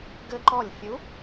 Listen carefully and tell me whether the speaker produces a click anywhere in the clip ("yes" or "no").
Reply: yes